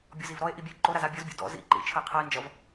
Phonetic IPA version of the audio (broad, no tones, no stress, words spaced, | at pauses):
bʲɔzivɾɔe̯ʔi bʲɛe̯ǃoɾaz abʲɔzbʲɔ̰ dɔ̰ zḭ ǃḭ t͡ʃʰəe̯qʰʌe̯nd͡ʒʌv